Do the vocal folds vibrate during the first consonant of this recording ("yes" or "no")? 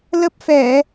yes